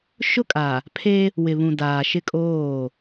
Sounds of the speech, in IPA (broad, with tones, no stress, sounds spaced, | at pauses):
ʃ ʊ˦ kʼ a˨ | pʰ e˦ | w ɪ˨ β ũ˨ d aː˨ ʃ ɪ˦ kʼ oː˦˨